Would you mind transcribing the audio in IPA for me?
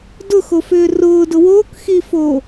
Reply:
d ʊ x o f ʏː r ʊː d ʊ w oː k x i f oː

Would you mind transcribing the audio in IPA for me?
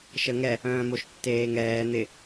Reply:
ʃ ə ŋ ɛ | œ̃ː m o ʃ tː eː ŋ ɛː n̪ ɪ

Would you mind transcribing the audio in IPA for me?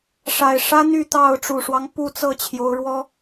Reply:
ʂ a˨˩ ɪ̯ ʂ ä˦ n̪ y˥˨ t̪ ɑ˥˨ ʊ̯ ʈ͡ʂ u˨˩ ʂ w ɑ˦ ŋ p u˥˨ t͡s ɤ˥˨ t͡ɕʰ j o˨˦ ʊ̯ ɻ w ɔ˦

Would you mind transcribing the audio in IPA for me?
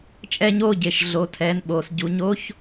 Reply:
t͡ʃʼ ɛ˧ ɲ oː˧ ɟ e˩ ʃ ɮ o˩˧ tʰ ɛː˩˧ n ɓ oː˩ s ɟ u˩˧ ɲ o˧˥ ç

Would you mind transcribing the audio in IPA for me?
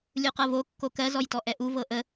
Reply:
lʲ u q ɤ v o kː o k ɜ z ɔ j t ɔ ʔ ɛ ʔ u v ɤ ʔ ə

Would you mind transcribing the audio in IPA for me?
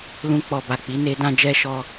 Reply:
l ũ˧ k͡p ɔ˨ b a˨ k͡p i˨˦ n e˦ d ã˦ d͡ʒ ɛ˧ ʃ ɔ˧

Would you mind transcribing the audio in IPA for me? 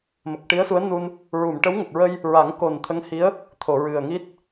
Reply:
m ə˨˩ k̚ ʈ i˧˥ ə̯ s u˧˥ ə̯ n u˧ n | ɹ u˨˩˨ m ʈ ə˧˥ w ŋ ə˨˩ k̚ ɹ ə˧ j | ɹ a˨˩˦ ŋ k o˨˩ n t̪ʰ ə˧˥ ŋ h i˧˥ ə̯ | t̪ʰ o˨˩˨ ɹ ɨ˨˩ ə̯ ŋ i˦˥ t̚

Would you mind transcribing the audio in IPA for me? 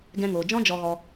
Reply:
ɡ ɛ̃˧ ŋ oː˨ d͡ʒ ɔ̃˦ d͡ʒ ɔ˧ ɣ ɔ˧

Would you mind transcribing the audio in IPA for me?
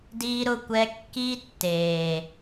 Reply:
d iː˦ ɾ ʊ˦ kʷ ɛ˦ kː iː˦ tː eː˧

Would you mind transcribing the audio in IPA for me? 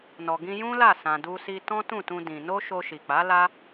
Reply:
n ɔ˨ ɡ ĩ˧ j ũ˦ l a˦˨ s ã˨ d u˧ s i˧ t ɔ̃˦ t ũ˦˨ t ũ˧ d ĩ˨ n o˧ ʃ o˧ ʃ i˨ k͡p a˨˦ l a˦

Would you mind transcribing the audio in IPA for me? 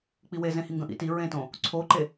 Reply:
k͡p i w e z ẽ h i ŋ ɡ ə̃ ʔ ḭ t i ɹ ẽ t õ | ǀʰ o ǃ e

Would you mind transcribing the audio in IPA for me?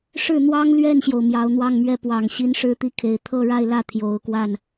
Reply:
ʂ ɻ̩˥˩ n̪ w ɑ˥ ŋ l ɥ ɛ˥˩ n ɕ j o˩ ʊ̯ m j ɑ˧˥ ʊ̯ n̪ w ɑ˥˧ ŋ m ɥ ɛ˥˩ p w ɑ˨˩ ŋ ɕ i˧˥ n ʂ ɻ̩˥ t̪ i˥˩ kʰ e˨˩ ɪ̯ t̪ʰ ɤ˥˧ ɻ a˥˧ ɪ̯ l ä˥˩ t̪ʰ j o˨˩ ʊ̯ k w a˥˩ n

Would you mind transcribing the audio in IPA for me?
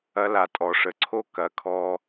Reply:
ɐ˧ l a˨ tʼ ɔ˨ ʂ ə˨ ǀʰ o˦ k ɐ˧ kʰ ɔ˦

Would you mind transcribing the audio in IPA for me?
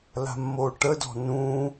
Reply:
l a̤ mː o ʈ ə d ɔ̤ n ũ

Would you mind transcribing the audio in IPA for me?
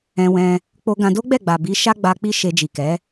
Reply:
ɛ̃˧ w ɛ̃˧ | k͡p o˧ ɡ ã˧ d o˦ ɡ͡b ɛ˦˨ ɡ͡b a˨ b i˨˦ ʃ a˦ ɡ͡b a˧ k͡p i˦ ʃ e˧ d͡ʒ i˨ k ɛ˨˦

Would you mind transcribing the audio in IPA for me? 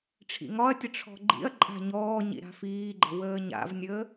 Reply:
ʈ͡ʂʰ ḭ ŋ ɒ ɐ̯ tʲ ə ʈ͡ʂʰ ɔ̤ ɡ͡ǃ ḭ ɐ̯ ǃʼ a̤ ɲ ɔː ɲ ḭ ɾ a̤ f iː ɡ͡ǃ ə̤ w əː ɲ a̰ v nʲ əː

